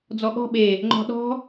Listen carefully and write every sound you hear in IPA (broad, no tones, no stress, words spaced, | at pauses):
d͡zɔɠɔ̤ ɓe | ŋ͡ǃɔ̤ɗɔ̤